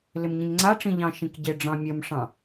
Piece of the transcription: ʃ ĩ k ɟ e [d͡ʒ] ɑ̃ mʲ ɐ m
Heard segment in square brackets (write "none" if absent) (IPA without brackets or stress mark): ɖ͡ʐ